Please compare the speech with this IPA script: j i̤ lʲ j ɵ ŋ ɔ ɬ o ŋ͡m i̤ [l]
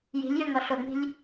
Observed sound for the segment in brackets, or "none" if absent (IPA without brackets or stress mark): lʲ